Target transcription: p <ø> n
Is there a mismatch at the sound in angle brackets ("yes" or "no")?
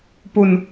yes